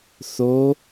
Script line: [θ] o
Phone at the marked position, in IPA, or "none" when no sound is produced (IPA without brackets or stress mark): θ